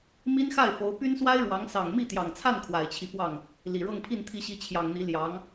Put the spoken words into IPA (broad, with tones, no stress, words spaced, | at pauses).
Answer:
mi˥nxa˥˩ɪ̯fo˧˥ʊ̯ py˥nswa˥ɪ̯ ɻwɑ˧˥ŋ sɑ˨˩ŋmi˥˩t̪jɑ˨˩ŋt͡sʰa˥˩n kʰwa˨˩ɪ̯t͡ɕʰi˦fwɑ˥˩ŋ | li˨˩ɻɤ˥˧ŋpʰi˥˩n t̪ʰi˧˥ɕi˧˥ t͡ɕʰjɑ˨˩ŋn̪i˧˥ ljɑ˧˥ŋ